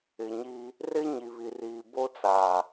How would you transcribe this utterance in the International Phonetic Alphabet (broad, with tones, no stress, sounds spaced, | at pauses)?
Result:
ɪ˨ ɲ i˦ | r ɪ˦ ɲ i˨ β i˨ r iː˨ b o˦ t͡s a˨